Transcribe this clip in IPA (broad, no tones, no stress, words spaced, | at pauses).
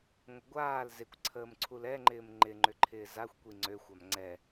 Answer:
ŋʷəɡʷaːl zɪkʷǀʰəːm ǀʰulɛŋ͡ǃɪːm ŋ͡ǃɪŋ͡ǃʏǃʰɪː zaxʷkʷi ŋ͡ǀøxʷam ŋ͡ǀɛ